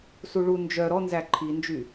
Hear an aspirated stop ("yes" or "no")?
yes